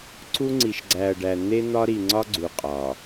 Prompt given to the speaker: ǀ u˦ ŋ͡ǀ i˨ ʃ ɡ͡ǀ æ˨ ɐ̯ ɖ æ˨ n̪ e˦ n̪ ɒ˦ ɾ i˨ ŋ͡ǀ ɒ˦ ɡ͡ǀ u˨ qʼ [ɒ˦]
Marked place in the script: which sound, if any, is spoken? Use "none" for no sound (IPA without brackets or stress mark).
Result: ɒ˨